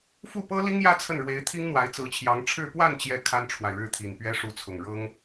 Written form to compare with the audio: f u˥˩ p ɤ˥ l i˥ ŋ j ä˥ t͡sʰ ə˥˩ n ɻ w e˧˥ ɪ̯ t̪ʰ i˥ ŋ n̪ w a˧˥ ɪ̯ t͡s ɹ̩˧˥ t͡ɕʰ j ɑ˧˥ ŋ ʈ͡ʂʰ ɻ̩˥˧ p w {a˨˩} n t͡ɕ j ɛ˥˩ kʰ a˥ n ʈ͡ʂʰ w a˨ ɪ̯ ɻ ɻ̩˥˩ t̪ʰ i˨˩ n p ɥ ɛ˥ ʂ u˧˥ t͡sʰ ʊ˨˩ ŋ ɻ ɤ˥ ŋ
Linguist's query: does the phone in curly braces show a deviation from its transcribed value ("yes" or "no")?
yes